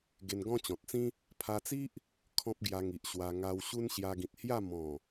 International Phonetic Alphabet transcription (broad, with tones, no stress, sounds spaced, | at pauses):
ɡ e˧ n ɡ ɔ̃˦ t͡ɕ ɔ̃˨ t̚ t͡s ĩ˦ | pʰ a˧ t͡s i˦ ʔ | kʰ ɔ̃˦ p̚ ɡ j a˧ ŋ i˨ ʔ ɕ w a˧ ŋ a˧ w ɕ u˦ n ɕ j a˧ ɡ ĩ˨ t̚ h j a˥˧ m ɔ̃˨˩